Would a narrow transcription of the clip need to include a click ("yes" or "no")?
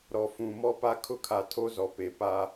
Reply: no